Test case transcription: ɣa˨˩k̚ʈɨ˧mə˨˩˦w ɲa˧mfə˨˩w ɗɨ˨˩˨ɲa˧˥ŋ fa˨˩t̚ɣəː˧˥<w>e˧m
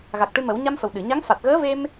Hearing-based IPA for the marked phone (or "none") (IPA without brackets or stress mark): v